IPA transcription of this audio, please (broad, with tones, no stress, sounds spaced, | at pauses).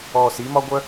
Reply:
ɔː˨ s i˦ m ɒ˦ ɡʷ œ˦